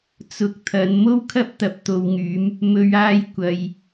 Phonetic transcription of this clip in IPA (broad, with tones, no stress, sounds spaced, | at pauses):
t͡s ʊ˧ k̚ t̪ʰ ɐ˨˧ n m o˥ w kʰ ɐ˥ p̚ t̪ ɐ˨ p̚ t̪ o˨ w ŋ yː˨˥ m | m ɵ˨ ɥ aː˧ j kʷ ɐ˨ j